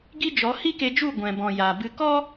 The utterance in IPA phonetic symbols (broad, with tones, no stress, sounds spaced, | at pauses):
ɡ i˦ d͡ʒ ɔ˨˦ h i˦ k e˧ d͡ʒ u˦˨ ɡʷ ɛ̃˨ b ɔ̃˨ j a˨ b ɨ˧ k ɔ˦